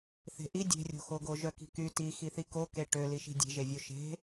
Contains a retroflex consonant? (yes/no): yes